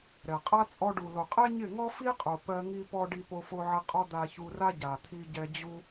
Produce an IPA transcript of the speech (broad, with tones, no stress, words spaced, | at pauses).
ɾɛ˨qʼa˦ t͡sʼɔ˧ɖu˨ lo˨qʼɛ˦ ɲɪ˦˨ŋɔ˦ fi˦qʼo˨ pɜ˧ ŋi˧pɔ˧ ɖi˧po˧fo˧ʕɪ˧ qʼɔ˦d̪a˧çu˧ra˦ ɟa˨t̪ʰi˧ɟɛ˧ d͡ʑu˧